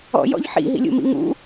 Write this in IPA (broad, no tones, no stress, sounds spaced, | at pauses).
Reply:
ɔ̰ j ɔ̰ ʎ ħ ḭ ɦ ḭ lʲ ṵ m ḭ ŋ ṵ